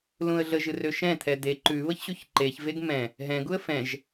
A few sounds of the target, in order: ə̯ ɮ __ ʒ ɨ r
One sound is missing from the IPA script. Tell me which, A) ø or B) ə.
B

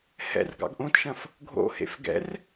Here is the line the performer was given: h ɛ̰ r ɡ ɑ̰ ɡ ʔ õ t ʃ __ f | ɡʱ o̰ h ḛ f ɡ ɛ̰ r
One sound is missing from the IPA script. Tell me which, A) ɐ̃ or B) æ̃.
A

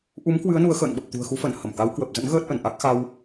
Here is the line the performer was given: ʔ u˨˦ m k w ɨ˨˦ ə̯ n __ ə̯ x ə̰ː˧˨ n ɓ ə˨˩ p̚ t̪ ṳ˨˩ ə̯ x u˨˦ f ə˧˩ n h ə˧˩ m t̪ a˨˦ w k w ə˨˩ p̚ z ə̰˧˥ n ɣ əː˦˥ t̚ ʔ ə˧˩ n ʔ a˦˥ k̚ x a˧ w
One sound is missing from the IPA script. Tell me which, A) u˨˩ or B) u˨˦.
B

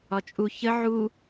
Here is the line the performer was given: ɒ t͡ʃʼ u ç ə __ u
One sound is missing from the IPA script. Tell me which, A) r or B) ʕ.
B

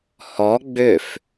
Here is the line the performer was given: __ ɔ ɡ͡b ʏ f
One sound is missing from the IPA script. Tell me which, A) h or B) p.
A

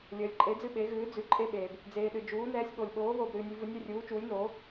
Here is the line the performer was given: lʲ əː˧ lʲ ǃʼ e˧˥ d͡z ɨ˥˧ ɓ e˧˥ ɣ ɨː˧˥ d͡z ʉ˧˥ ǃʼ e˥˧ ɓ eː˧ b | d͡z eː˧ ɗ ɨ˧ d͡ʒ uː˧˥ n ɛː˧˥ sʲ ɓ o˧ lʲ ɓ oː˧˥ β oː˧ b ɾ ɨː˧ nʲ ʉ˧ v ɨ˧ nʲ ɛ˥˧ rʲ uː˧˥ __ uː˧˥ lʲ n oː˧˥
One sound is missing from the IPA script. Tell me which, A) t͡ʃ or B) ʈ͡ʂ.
A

